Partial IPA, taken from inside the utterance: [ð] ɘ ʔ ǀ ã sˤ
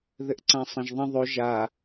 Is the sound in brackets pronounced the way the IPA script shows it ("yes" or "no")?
yes